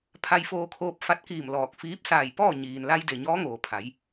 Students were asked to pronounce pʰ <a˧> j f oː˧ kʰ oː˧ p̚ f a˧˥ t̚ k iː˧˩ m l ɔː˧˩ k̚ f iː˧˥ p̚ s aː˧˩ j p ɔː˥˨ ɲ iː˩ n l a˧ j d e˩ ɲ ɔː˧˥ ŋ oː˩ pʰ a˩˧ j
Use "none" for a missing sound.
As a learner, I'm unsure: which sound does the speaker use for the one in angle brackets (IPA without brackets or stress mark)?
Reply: a˧